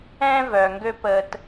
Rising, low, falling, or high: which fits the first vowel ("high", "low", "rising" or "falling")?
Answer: high